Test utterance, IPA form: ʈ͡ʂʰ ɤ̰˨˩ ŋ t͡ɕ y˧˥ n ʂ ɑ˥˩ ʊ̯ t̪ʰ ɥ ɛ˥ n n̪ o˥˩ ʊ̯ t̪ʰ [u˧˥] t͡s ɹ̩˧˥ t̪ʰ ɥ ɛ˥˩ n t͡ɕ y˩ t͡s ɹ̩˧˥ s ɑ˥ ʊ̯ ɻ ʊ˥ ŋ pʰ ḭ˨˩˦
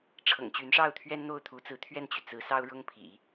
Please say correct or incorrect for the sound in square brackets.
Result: correct